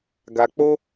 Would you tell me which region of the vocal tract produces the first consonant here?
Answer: velum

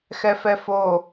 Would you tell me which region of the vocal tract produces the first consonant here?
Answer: velum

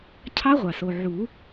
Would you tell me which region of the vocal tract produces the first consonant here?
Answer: palate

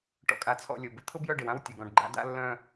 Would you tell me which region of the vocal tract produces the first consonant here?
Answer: retroflex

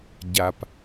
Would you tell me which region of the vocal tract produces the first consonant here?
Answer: palate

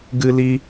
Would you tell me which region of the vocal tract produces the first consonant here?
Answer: velum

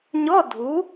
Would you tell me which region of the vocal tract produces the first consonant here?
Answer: palate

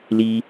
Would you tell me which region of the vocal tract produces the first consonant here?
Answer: tongue tip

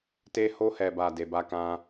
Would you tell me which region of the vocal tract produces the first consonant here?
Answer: tongue tip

